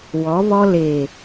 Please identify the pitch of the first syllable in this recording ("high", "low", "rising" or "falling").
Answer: rising